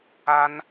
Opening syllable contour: high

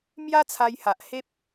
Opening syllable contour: high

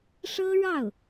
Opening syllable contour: high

